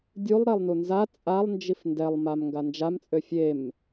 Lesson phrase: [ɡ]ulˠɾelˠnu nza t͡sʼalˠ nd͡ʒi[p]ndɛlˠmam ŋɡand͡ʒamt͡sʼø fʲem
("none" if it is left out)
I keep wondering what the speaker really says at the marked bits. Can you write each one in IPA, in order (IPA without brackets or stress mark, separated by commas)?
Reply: dʲ, f